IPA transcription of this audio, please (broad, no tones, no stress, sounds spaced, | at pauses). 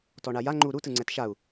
t ɔ ɳ a j a ŋ͡ǃ u ɾ u t ɯ ŋ͡ǀ ɛ t ʃ a u̯